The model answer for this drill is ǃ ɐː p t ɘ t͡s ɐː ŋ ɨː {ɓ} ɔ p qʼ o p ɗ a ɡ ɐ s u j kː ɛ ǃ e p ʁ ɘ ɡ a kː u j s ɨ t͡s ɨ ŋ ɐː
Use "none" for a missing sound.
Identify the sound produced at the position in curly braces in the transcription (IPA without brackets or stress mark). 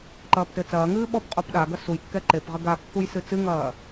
ɓ